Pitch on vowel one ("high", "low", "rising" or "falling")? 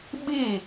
falling